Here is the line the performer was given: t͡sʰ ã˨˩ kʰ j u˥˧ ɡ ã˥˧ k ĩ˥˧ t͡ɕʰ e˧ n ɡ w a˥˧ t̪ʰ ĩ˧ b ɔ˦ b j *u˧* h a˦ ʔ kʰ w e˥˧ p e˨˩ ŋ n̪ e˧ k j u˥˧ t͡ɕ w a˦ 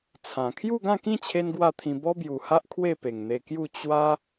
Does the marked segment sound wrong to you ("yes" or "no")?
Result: yes